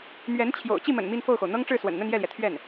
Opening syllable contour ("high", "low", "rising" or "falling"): rising